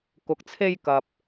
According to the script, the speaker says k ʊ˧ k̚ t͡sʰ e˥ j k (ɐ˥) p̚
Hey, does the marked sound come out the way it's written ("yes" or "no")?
no